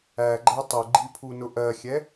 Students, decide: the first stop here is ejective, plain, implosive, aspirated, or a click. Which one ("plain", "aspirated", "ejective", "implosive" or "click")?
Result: click